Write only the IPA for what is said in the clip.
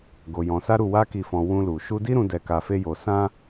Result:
ɡo˧jɔ̃˧ sa˦ɾu˦˨ wa˧ki˨fɔ̃˨ wũ˧lu˨ ʃu˧di˦ɾũ˧ dɛ˧ka˧fe˦jo˧ sã˦

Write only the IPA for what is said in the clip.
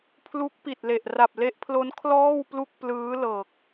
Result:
pʰlu˦˥k̚pi˨˩t̚le˨˩ʔ ra˨˩p̚le˦˥ʔpʰlo˦˥n kʰlɔː˥˩wplu˥˩k̚ plɯː˦˥lɤː˨˩k̚

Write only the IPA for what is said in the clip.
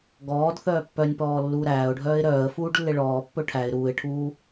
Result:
ɡɔːdθœː pːœnʲpɔː lːuːɾæːʊ̯ɖʱœːɪ̯ ɾœːə̯fuːɖ lːeɭɔːpːɵ ʈʰæɪ̯ ɾuːɪ̯ʈʰuː

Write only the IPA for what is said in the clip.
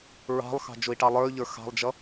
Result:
ɹɑ̤lˠxɑ̤ d͡ʒʊi̯ʈɑlˠə˞y̯ʎə˞ xɑ̤lˠd͡ʒʌ

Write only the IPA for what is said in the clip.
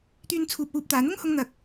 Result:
t̪yː˧nt͡sʰuː˨p̚ wuː˧p̚t̪aː˨˧ n̪ʊ˥ŋ hʊ˥ŋn̪ɐ˧k̚

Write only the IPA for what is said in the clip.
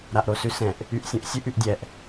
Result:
ɾaʔɾosʉsɛ̃ʔ | yʔsʲũʔsʲʉʔ yʔdʲɛʔ

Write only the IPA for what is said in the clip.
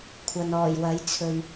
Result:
kʷʰɐ˨nɔː˨˩jwɐ˨˥jt͡sʰɵ˨ɥ

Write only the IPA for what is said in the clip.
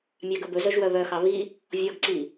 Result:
mʲɑɡɵbɵzœʒ wœβœxɑ βi | vʲɔɡǀi

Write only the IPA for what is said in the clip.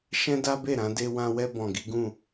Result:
ʃɛ̃˦da˦be˦˨ ɾã˧de˧wã˧wɛ˧ bɔ̃˨ɡi˨˦ɡũ˦˨

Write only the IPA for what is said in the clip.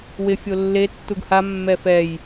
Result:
wɪ fʲolːe tːuɡha mːɛfɛj

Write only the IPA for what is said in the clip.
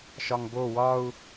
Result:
ʃɒŋbo wɒu̯

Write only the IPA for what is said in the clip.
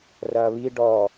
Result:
rɐːβi ɖɔ

